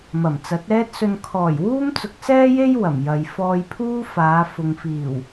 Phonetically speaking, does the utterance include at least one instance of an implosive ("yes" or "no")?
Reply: no